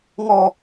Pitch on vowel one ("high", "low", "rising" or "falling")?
low